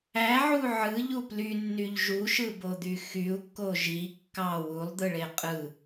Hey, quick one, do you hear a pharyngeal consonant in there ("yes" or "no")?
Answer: yes